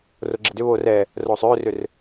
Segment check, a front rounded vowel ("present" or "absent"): present